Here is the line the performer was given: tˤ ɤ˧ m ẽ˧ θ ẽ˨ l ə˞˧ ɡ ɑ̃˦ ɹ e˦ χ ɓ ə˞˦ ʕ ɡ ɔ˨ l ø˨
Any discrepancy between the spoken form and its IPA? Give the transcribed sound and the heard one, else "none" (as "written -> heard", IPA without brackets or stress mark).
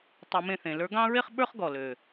ʕ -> χ